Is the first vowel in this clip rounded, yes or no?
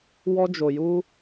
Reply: yes